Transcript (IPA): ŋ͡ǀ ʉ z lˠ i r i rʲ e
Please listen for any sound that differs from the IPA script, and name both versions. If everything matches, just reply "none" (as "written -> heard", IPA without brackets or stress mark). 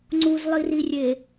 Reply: ʉ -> u